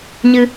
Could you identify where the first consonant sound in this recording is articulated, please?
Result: palatal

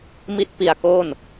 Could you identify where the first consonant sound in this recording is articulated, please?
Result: labial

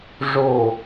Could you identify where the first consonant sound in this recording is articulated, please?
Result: retroflex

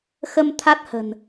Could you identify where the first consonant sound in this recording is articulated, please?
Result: velar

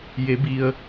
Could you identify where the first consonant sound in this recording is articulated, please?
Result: palatal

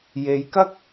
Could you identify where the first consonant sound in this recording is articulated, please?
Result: palatal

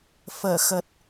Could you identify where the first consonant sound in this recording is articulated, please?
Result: labial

